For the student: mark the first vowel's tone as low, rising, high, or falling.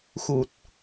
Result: low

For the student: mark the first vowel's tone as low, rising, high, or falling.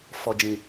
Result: low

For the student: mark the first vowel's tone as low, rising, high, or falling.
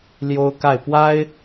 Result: high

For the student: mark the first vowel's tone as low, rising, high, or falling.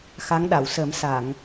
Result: rising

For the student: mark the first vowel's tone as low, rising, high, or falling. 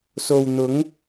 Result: low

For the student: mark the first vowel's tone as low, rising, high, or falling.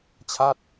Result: falling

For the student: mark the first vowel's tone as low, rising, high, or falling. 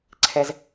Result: low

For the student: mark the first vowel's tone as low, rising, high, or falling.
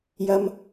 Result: high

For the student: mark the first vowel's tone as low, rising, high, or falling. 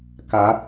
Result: rising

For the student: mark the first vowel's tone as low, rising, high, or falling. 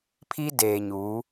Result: high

